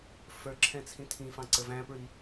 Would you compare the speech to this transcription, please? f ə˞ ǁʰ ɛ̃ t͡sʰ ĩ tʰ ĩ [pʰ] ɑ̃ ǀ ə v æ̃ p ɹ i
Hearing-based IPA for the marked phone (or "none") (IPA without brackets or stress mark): f